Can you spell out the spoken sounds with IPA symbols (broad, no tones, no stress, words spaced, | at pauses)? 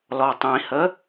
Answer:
lɔtˤĩhə